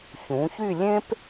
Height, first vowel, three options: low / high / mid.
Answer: high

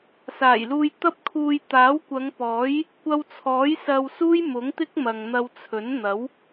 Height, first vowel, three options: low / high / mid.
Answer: low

